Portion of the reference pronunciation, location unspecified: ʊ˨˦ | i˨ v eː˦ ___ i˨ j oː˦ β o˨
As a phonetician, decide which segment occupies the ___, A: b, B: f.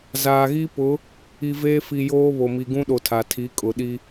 B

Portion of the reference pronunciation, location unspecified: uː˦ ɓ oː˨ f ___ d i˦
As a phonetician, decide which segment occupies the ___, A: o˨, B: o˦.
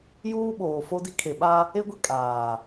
B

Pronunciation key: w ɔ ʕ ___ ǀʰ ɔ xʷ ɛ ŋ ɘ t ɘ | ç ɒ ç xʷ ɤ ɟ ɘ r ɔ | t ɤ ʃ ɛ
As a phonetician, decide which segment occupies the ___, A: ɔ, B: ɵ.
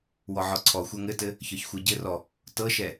A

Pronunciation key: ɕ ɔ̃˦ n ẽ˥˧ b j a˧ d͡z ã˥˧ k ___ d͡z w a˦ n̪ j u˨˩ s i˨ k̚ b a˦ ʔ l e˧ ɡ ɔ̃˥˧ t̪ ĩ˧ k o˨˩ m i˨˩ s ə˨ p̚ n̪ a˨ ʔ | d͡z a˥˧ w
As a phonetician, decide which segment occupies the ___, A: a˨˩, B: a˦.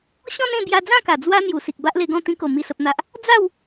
A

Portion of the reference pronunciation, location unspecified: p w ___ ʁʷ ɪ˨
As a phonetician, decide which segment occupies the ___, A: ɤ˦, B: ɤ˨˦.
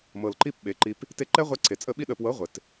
B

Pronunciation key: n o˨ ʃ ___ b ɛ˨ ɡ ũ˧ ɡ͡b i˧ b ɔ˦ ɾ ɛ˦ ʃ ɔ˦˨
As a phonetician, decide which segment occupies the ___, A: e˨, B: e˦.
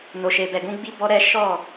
A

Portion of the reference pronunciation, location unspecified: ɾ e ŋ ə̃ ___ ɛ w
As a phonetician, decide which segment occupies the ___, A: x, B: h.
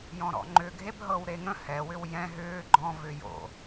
B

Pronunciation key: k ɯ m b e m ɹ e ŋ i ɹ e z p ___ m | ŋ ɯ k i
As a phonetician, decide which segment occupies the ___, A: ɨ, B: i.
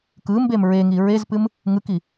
A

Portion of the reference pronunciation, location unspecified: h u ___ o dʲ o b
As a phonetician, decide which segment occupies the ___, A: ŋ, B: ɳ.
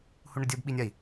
B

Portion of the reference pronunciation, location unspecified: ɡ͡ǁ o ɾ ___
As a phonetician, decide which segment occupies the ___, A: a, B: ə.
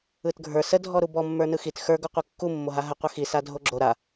A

